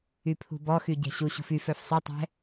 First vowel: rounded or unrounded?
rounded